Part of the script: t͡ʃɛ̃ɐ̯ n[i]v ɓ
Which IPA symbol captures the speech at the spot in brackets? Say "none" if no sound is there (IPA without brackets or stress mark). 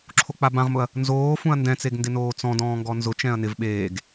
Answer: ɪ